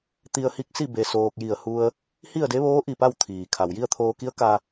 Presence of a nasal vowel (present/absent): absent